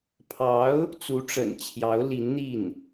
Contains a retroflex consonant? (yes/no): yes